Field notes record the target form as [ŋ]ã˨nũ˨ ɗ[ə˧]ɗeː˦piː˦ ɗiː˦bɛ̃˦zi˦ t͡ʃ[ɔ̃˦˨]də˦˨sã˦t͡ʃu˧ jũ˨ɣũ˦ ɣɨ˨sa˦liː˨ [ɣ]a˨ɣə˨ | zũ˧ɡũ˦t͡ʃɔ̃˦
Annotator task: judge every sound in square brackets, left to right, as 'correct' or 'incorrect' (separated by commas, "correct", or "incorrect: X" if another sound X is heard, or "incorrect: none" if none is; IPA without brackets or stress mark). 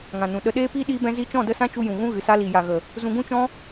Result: correct, correct, correct, incorrect: j